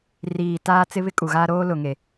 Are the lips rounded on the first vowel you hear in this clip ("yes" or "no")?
no